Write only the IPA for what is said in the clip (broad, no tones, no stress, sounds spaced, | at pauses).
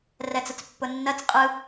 r ɛ t͡s ə t͡s pː ʊ nː ɜ t͡s qʼ ɯ